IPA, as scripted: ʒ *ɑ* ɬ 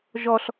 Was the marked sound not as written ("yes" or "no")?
yes